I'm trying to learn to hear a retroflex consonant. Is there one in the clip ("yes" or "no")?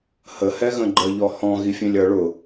yes